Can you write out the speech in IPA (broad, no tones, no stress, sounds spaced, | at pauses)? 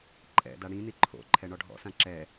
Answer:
ǃʼ ɛ̰ d a ɽ ĩ n i ǃʰ o̰ ǃʰ ɛ ɳ ɔ ɖʱ ɔ̰ s ã ǁ ɛ